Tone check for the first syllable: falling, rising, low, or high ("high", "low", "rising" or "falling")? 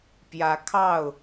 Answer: rising